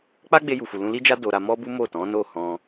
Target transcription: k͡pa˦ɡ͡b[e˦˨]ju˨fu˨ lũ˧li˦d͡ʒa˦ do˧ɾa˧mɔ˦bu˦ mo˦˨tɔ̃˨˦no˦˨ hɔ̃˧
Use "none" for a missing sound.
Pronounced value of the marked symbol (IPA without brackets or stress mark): e˧